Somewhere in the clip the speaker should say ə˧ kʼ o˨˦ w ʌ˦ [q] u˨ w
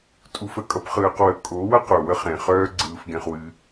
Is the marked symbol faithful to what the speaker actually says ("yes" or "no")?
yes